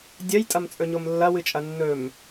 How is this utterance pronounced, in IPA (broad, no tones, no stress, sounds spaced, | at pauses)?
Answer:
dʲ ɐ j tʼ ɐ m t͡sʼ ɵ ɲ o m lː ɐ w ɨ t͡ʃʼ ɐ nː ɵ m